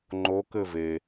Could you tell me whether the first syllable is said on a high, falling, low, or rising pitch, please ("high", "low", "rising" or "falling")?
rising